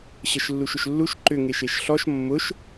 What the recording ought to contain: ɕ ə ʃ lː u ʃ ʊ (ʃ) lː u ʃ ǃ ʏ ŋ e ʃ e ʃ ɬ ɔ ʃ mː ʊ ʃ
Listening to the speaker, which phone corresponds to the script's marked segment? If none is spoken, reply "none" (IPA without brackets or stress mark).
ʃ